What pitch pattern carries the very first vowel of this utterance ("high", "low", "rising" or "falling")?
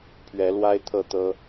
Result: rising